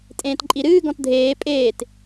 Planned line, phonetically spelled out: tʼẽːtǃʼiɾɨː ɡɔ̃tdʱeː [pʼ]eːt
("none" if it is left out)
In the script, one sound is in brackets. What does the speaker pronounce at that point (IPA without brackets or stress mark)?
pʼ